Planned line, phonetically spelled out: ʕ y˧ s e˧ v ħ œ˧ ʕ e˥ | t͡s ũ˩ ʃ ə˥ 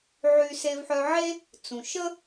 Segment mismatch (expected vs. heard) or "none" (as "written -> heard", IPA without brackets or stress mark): none